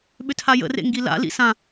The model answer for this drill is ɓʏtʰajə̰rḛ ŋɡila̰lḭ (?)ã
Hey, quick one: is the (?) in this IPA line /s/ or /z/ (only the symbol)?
s